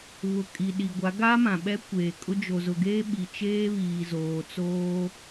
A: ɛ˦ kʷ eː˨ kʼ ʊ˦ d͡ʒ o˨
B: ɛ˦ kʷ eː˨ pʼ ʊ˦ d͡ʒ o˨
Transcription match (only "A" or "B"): A